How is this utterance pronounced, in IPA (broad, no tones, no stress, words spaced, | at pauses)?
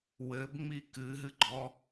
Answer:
wɘbŋ͡mi kɨɦɨɡ͡ǃɔ